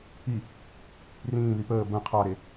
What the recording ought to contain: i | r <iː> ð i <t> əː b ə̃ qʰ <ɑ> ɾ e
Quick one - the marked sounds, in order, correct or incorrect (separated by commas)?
incorrect, incorrect, correct